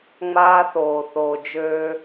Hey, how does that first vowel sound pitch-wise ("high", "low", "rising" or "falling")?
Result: high